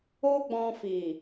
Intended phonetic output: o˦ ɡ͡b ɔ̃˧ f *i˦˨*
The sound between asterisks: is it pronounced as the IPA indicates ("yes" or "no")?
no